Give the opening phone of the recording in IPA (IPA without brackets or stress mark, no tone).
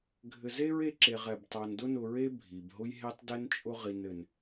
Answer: ɡʱ